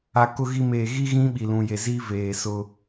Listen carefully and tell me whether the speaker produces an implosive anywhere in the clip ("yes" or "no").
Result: yes